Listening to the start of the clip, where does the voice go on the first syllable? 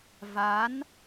rising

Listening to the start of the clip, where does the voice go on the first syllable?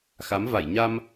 rising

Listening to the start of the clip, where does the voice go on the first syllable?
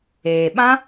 low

